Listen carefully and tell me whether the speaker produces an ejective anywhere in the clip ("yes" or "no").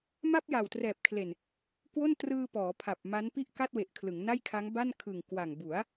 no